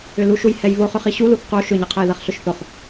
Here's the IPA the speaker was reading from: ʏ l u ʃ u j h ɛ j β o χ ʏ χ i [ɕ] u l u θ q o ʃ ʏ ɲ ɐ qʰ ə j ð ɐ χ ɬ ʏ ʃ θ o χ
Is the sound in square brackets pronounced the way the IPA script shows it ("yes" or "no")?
yes